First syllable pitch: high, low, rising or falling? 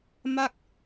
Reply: falling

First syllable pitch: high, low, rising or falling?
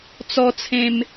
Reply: high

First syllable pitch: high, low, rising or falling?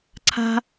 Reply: high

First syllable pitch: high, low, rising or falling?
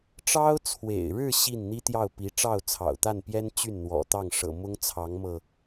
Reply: high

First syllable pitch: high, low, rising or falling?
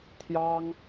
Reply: high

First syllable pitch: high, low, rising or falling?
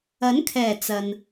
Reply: rising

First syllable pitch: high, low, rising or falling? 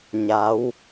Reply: rising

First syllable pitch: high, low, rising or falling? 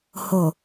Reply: low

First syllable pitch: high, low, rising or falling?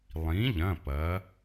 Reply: rising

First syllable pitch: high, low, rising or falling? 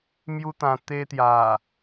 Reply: high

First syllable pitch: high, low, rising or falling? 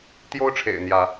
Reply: high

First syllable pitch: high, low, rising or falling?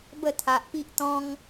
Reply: falling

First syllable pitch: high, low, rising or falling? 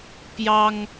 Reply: high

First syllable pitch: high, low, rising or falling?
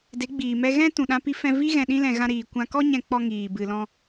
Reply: rising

